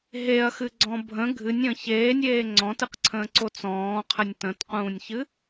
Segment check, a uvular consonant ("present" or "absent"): present